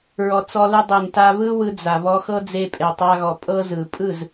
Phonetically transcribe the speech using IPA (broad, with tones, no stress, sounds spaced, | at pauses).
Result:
ɹ ɔ˨ t͡s ɔ˧ l ɯ˧ dˤ e˨ n t a˧ β ɯ˦ w ɯ˧ d͡z a˨ β ɔ˧ x ɤ˦ d͡z e˧ pʼ e˨ tˤ a˧ ɣ ɔ˨ pʼ ɤ˦ z ɯ˨ pʼ ɯ˦˨ z